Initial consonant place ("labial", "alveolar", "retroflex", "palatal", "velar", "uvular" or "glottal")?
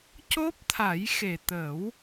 palatal